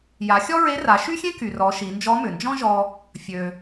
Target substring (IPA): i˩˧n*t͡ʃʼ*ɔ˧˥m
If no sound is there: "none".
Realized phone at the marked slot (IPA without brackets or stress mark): d͡ʒ